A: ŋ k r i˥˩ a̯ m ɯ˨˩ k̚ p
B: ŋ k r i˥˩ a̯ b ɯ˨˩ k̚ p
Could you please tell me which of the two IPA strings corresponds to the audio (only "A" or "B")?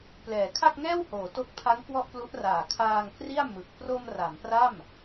A